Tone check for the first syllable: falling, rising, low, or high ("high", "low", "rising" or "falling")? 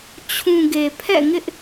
low